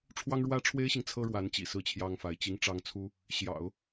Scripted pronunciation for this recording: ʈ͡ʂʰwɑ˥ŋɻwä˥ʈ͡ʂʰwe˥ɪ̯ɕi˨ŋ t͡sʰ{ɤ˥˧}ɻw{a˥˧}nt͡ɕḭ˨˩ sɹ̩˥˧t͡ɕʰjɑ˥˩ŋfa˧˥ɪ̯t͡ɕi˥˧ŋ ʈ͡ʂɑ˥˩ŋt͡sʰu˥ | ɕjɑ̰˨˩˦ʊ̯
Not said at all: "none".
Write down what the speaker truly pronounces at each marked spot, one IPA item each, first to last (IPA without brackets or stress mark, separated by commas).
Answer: ɤ˥, a˧˥